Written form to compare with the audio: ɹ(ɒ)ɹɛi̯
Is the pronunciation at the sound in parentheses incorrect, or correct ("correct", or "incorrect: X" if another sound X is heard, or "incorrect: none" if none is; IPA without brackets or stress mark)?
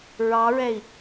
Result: incorrect: ɑ